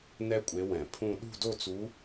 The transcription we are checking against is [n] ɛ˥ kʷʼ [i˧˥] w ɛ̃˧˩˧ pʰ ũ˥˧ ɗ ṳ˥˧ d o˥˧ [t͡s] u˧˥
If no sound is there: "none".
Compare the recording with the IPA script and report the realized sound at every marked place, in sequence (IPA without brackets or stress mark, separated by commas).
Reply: n, e˧˥, t͡s